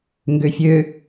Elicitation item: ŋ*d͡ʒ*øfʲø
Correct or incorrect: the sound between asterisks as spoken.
incorrect: ɡ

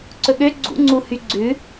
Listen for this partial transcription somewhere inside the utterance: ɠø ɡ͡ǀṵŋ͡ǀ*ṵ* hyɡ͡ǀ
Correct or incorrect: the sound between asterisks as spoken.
incorrect: u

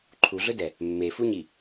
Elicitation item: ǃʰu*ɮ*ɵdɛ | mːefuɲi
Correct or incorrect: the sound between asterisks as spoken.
correct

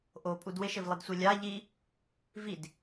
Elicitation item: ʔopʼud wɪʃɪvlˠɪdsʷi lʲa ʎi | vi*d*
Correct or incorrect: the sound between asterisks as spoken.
correct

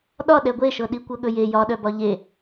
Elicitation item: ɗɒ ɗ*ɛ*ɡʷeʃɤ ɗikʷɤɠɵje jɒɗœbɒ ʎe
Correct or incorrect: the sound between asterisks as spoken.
correct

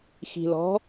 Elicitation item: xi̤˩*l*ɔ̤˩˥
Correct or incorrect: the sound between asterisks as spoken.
correct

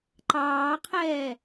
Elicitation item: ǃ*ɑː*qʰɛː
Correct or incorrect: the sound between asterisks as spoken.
correct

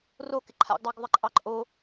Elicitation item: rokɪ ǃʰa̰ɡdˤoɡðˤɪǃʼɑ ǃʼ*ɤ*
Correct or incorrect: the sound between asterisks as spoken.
incorrect: o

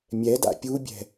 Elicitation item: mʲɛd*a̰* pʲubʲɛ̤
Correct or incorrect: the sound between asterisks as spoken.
correct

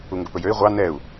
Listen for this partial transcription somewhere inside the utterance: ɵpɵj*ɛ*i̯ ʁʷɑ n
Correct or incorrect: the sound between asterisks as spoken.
incorrect: ø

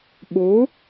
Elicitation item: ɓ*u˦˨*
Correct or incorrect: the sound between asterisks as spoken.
incorrect: u˨˦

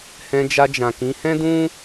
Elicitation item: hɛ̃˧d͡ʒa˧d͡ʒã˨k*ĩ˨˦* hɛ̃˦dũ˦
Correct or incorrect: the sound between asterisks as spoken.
correct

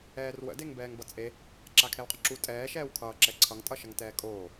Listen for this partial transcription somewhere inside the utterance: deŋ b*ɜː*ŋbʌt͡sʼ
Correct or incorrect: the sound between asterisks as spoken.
incorrect: ɛː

